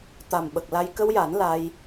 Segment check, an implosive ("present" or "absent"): present